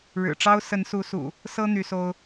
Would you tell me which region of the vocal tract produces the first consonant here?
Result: retroflex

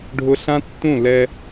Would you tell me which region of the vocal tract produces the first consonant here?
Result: retroflex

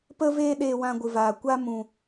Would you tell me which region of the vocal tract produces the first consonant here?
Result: lips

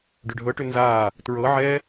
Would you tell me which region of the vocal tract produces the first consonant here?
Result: retroflex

